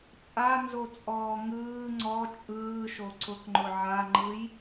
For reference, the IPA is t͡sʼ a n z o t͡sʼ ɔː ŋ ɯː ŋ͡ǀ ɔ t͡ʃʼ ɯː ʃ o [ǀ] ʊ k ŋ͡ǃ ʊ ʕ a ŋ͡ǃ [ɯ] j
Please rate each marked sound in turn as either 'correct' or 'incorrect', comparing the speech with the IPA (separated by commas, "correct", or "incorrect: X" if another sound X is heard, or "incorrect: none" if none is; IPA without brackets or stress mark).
correct, correct